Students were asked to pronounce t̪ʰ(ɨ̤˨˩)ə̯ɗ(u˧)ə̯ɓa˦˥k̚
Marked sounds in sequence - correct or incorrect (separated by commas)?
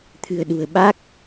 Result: correct, incorrect